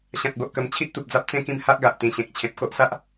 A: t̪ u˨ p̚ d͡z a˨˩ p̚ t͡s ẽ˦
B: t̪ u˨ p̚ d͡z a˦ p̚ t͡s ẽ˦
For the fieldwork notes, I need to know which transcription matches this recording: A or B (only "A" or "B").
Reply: B